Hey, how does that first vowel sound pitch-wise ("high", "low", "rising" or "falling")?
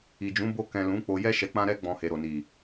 low